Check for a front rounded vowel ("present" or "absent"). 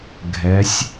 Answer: absent